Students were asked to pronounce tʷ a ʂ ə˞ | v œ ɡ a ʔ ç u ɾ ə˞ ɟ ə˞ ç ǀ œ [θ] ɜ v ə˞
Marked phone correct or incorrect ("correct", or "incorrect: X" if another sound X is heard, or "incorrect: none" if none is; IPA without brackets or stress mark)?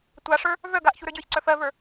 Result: incorrect: f